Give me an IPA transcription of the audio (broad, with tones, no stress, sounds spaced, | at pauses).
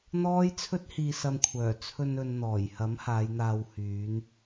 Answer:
n̪ ɔː˥ j t͡sʰ ɵ˥ t̚ h iː˧ s ɐ˧ m kʷʰ œː˨˩ t͡sʰ ɵ˧ n ɵ˨ n n̪ ɔː˨˩ j h ɐ˨˥ m h aː˨˧ j n̪ aː˧ w h yː˨˧ n